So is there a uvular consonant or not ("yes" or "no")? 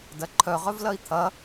yes